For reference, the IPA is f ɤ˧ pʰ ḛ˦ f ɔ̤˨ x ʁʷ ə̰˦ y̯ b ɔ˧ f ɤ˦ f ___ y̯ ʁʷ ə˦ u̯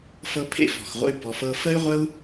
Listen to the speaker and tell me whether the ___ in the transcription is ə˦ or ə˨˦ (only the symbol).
ə˦